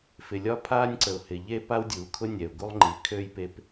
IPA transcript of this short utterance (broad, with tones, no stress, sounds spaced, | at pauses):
f ɪ˩ lʲ ɒ˥ pʰ aː˥ nʲ ǀ ə˩ ʊ̯ h ɪ˩ ʎ e˥ p a˥ w dʲ uː˩ kʰ ʊ˥ nʲ ɛ˩ ʊ̯ ɡ u˥ lˠ ŋ͡ǃ i˩ kʰ ø˥ j p e˥ p